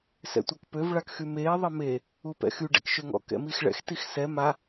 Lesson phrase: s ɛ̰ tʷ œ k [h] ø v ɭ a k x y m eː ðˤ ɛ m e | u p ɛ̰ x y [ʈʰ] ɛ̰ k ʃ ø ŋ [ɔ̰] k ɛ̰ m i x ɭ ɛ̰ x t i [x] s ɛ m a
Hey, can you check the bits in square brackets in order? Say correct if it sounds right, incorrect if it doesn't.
incorrect, incorrect, correct, correct

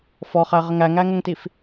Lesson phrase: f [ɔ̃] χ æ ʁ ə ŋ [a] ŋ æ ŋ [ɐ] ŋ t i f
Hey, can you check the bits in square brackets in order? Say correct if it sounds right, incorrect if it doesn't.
incorrect, incorrect, incorrect

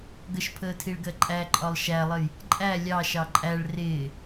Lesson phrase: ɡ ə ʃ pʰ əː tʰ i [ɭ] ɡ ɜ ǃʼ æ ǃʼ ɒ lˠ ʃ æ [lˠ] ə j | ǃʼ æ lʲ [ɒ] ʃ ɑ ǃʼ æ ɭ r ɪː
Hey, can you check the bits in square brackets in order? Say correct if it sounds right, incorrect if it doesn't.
correct, correct, incorrect

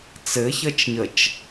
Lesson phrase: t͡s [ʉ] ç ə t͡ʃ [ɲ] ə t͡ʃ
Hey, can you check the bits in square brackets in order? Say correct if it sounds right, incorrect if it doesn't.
incorrect, correct

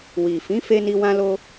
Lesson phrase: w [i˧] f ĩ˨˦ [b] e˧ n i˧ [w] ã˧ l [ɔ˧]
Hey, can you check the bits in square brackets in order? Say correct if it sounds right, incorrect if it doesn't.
incorrect, incorrect, correct, incorrect

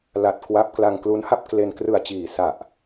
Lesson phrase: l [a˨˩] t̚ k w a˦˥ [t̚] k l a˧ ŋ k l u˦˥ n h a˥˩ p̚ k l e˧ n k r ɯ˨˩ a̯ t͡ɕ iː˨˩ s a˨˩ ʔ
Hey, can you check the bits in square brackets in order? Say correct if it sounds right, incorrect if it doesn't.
correct, incorrect

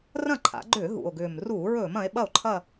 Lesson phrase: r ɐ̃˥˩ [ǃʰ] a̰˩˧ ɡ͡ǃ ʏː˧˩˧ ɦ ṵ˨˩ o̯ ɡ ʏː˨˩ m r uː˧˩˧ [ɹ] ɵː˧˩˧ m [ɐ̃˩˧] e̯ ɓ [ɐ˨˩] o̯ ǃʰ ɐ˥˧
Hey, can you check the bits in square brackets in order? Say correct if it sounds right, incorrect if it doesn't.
correct, correct, correct, incorrect

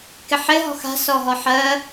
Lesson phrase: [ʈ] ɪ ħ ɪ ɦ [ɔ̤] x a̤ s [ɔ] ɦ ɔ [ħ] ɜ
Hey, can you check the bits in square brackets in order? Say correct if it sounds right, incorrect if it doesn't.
incorrect, correct, correct, correct

